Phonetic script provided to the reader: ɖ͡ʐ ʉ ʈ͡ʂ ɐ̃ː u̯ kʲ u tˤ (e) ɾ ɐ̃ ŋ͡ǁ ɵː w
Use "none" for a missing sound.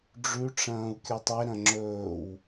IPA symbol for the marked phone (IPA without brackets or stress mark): e